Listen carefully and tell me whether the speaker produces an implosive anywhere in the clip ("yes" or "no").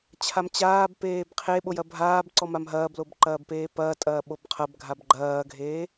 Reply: yes